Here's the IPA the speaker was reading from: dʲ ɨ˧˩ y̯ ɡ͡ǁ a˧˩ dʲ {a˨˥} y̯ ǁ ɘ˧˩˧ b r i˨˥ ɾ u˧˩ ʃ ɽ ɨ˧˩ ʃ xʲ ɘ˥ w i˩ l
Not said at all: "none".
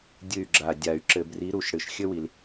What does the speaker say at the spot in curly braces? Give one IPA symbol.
a˧˩˧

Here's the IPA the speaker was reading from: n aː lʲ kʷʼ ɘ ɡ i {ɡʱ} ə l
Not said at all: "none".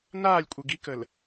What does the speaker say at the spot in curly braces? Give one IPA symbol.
k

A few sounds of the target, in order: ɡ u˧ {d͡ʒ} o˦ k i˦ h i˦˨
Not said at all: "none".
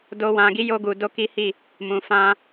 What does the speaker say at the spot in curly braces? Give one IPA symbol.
d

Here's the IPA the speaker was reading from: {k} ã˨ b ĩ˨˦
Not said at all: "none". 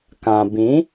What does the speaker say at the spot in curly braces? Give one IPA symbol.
k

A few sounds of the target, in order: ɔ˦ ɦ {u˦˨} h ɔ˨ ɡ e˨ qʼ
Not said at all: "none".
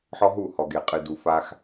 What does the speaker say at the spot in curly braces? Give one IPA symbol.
u˦˨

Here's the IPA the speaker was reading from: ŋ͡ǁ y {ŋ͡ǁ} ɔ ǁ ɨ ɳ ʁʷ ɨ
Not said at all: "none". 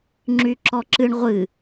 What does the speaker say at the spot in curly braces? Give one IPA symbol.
ǁ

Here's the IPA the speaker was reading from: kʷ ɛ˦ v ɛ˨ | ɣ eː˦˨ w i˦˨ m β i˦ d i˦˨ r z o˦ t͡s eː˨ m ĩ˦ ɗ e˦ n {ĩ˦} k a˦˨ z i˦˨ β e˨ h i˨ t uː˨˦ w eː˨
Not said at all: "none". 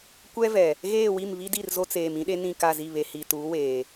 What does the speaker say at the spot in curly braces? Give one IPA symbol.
ĩ˦˨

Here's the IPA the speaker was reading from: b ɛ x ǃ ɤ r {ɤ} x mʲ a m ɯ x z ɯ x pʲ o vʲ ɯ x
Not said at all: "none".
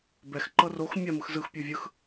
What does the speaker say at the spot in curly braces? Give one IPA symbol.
o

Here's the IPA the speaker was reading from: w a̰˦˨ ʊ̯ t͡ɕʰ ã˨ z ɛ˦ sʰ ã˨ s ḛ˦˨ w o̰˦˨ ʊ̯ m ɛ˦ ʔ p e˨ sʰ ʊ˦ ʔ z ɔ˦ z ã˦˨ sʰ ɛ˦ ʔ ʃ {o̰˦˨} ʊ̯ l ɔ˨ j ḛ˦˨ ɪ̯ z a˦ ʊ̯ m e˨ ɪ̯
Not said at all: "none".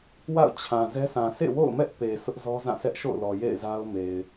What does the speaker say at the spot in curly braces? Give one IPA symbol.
o̰˦˨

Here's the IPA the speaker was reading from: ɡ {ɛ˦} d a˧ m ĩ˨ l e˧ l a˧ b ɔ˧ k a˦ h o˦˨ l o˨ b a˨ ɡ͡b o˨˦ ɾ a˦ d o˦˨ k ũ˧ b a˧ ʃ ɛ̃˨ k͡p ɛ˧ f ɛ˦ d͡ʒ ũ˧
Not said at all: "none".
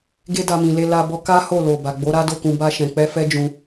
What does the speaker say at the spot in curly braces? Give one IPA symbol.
e˦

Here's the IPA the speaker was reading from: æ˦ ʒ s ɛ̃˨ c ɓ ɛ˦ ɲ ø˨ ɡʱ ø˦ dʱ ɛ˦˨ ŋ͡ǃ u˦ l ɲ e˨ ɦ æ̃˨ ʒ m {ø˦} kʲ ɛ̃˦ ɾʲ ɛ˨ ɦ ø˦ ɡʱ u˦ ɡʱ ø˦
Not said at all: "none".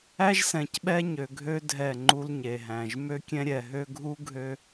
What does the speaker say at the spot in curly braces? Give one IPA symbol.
ø˦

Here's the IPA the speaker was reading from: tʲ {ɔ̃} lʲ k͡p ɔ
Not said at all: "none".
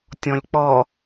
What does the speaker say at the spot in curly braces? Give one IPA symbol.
ɔ̃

